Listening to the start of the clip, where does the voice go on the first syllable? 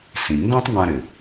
low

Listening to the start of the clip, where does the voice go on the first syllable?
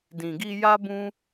low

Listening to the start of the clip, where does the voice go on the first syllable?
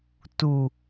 low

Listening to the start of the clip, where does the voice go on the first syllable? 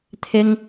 high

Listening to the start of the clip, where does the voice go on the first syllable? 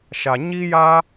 low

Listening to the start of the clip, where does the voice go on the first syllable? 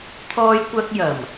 high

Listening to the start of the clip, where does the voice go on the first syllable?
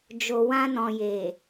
low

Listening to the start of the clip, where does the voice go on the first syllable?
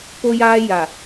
high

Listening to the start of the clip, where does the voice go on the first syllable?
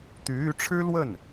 rising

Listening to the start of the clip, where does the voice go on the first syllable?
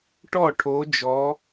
falling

